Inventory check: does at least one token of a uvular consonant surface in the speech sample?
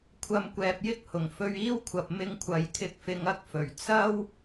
no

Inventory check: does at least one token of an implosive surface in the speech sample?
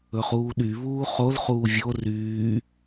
yes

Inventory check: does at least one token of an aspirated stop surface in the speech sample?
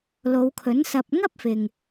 yes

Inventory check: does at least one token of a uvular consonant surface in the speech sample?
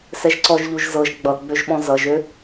no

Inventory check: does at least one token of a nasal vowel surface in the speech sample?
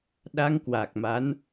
no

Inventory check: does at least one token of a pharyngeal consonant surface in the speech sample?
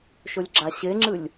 no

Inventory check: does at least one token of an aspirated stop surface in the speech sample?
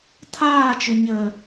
yes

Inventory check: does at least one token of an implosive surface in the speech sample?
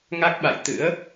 yes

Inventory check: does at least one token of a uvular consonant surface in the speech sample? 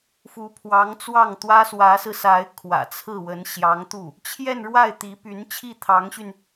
no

